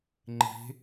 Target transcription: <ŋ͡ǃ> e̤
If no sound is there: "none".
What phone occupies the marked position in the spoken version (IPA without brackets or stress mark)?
ŋ͡ǃ